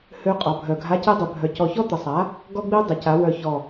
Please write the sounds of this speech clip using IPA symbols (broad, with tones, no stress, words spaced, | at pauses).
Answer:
hø˦˥ qʼɔ˩˥bʱœ˧˩ ɡʱa˧˥˧ci˦˥dˤø˧˩bʱœ˧˩ cɔ˧˩çɔ˦˥t̪ə˩˥sˤa˩˥ | ɡɔ˦˥ɡ͡bi˦˥ dˤə˩˥ca˩˥wœ˧˩ çɔ˧˩